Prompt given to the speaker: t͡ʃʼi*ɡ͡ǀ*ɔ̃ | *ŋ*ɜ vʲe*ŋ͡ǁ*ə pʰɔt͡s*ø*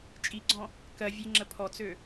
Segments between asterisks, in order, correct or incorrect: correct, incorrect: k, correct, correct

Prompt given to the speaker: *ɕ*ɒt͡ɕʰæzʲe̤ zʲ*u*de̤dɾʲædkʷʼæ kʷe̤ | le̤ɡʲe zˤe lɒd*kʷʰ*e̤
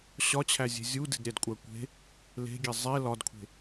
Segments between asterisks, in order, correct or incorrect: correct, correct, correct

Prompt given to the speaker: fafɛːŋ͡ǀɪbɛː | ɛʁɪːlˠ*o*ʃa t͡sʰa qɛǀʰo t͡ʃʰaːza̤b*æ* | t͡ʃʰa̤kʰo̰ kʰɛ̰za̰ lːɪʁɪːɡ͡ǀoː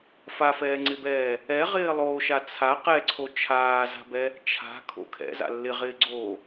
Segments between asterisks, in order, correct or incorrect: incorrect: oː, incorrect: ɛ

